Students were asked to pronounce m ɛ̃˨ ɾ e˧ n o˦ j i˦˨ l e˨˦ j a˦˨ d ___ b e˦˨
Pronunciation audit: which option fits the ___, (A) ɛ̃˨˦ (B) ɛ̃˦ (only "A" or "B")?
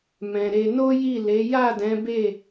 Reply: A